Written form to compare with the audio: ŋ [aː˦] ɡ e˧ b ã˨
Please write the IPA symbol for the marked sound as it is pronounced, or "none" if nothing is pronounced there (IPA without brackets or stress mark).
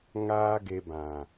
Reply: aː˦